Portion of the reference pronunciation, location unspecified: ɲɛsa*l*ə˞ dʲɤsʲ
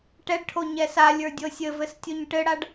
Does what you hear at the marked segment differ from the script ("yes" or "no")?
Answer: yes